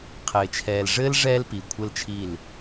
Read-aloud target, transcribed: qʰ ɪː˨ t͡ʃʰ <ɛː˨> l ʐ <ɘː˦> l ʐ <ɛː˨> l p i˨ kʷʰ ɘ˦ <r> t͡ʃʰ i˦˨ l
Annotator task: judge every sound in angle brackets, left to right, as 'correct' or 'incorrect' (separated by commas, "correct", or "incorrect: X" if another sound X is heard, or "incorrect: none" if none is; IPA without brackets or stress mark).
correct, correct, incorrect: ɛː˦, incorrect: l